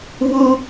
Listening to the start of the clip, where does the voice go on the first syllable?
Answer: high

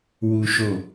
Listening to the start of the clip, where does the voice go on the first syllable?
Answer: high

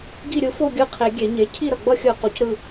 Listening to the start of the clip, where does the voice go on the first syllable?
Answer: falling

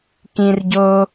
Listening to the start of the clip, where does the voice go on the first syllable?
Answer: high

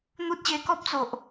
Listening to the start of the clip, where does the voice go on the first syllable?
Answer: high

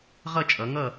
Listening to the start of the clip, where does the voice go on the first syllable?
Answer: falling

